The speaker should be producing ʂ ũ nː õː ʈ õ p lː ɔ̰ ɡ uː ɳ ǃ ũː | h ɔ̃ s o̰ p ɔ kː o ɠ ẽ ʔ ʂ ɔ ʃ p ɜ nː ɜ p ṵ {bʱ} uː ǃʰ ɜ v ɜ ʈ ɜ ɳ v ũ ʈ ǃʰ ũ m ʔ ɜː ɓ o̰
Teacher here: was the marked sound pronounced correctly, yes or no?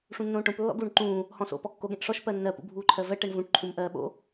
yes